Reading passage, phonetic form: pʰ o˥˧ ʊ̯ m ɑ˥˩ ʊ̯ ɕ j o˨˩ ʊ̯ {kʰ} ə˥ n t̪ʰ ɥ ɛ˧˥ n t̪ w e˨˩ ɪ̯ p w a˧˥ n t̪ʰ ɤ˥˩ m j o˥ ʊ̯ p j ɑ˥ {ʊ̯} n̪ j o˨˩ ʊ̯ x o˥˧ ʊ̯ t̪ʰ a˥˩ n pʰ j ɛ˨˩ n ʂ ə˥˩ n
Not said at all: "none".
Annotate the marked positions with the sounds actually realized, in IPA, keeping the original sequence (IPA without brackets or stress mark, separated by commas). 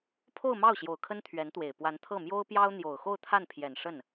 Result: kʰ, ʊ̯